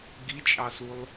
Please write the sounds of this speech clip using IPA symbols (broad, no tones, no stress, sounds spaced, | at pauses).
ɡ i t͡ʃʼ ɑ s u lˠ